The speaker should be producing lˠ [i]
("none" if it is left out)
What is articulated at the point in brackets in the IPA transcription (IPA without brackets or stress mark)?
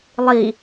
i